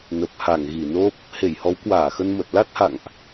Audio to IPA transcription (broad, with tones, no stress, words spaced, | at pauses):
nə˨˩p̚ha˧˩ŋɣi˧˩ no˦˥p̚ | he˧˩jhɔ˨˦wkwaː˧˩xə˧n mə˨˩t̚la˦˥t̚ha̰˧˨ŋʔ